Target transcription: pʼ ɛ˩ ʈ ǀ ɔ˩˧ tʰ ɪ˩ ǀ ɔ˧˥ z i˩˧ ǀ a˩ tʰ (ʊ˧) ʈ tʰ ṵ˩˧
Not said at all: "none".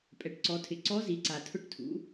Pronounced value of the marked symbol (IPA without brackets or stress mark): ʊ˧